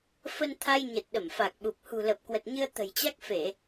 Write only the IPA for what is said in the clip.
fə˧nt̪ʰa˧j ɲə˨˩t̚ɗə˧˩mfa˨˩k̚ɓu˨˩p̚ hṳ˨˩lə˨˩p̚kwə˨˩t̚ɲɨ˧ə̯ t̪ə̤˨˩jt͡ɕa˦˥k̚fe˧˩˨

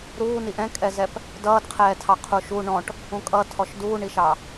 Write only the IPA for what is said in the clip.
ɾuː niʔɛ̃kʼɛzɛp | dʌːdqʰɛːtʰɑ qʰuʃu ɳɔ̃ʈ | ũkʼʌ tʰɔʃduːɳiʃɑ

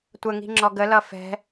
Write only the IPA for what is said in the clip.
tʷəŋi̤ ŋ͡ǁɔɡəlʌ fɛ̤

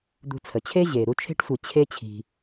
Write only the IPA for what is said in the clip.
d̪ṳ˨t͡sʰə˩t͡ɕʰe˦ ʑeː˩ɾu˦t͡ʃʰe̤˥ʈsʷi˨ t͡ɕʰe˦t͡ɕʰi̤˨

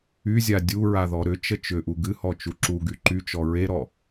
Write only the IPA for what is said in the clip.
yzʲa dʲuɹaðɔ ɾʏt͡ʃə t͡ʃʏʔu ɡɨhɔt͡ʃu ǁuɡy ǃyt͡ʃɔ ɹeɾɔ

